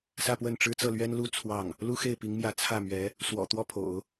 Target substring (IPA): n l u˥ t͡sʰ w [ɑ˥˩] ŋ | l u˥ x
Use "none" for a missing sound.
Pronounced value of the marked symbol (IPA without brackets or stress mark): ɑ˥˩